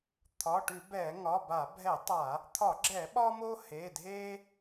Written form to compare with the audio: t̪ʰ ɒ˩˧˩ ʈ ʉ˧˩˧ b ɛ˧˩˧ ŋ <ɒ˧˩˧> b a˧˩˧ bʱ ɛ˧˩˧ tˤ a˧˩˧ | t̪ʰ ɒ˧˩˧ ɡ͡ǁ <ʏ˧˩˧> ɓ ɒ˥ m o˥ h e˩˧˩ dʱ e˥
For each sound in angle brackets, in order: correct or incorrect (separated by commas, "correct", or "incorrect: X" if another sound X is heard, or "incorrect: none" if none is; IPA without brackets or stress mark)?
incorrect: ɒ˩˧˩, incorrect: ɛ˧˩˧